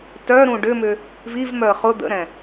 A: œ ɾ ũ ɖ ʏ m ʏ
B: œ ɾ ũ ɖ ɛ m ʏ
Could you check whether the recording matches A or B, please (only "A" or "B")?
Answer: A